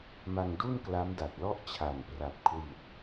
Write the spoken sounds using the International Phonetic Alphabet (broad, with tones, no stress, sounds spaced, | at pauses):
m a˧ ŋ d u˥˩ n k l a˦˥ m d a˨˩ t̚ l ɔ˥˩ ʔ t͡ɕʰ a˨˩ n p r a˨˩ p̚ kʰ w i˨˩ t̚